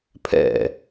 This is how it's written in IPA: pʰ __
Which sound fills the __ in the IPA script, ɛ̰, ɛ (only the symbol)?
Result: ɛ̰